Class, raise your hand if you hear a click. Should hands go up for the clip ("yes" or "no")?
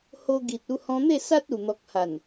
no